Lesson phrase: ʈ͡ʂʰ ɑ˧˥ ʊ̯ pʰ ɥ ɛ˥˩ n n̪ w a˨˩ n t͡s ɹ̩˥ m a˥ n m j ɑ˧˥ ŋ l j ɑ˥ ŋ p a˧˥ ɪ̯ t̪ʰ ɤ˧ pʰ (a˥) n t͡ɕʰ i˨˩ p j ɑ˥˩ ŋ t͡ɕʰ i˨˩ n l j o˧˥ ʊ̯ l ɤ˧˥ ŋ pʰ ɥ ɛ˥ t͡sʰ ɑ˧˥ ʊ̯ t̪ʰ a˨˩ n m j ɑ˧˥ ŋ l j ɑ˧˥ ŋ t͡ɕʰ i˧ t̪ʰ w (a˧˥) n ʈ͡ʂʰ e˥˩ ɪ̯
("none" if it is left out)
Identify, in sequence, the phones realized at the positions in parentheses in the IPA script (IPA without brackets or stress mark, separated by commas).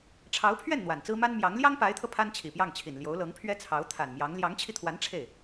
a˥, a˧˥